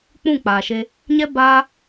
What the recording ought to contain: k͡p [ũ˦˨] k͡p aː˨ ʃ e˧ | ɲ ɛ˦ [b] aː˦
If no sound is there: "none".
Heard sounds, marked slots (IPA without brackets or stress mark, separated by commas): ũ˦˨, b